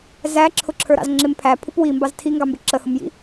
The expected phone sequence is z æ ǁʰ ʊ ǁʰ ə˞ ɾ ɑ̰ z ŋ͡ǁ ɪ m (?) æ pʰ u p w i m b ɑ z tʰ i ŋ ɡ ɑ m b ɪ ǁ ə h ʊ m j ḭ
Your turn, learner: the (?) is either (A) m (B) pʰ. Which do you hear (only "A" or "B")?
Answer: B